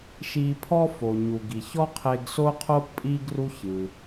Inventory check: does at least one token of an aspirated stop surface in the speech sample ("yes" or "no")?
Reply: yes